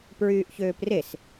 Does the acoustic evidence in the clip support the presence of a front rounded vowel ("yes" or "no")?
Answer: yes